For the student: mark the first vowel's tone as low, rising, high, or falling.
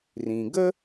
low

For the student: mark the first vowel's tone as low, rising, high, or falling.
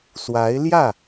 rising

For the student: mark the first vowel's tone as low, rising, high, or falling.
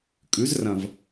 rising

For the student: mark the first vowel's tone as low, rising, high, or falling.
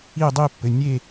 falling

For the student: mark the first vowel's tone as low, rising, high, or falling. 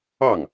falling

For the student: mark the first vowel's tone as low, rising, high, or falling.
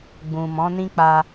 low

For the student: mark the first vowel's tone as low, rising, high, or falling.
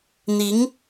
rising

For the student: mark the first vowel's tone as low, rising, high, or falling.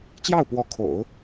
falling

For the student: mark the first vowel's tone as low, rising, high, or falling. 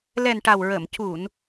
low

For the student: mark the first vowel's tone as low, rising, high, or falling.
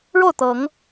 falling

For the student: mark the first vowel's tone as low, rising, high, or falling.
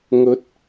rising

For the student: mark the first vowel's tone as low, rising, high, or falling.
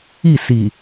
falling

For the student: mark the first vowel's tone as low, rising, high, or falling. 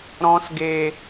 high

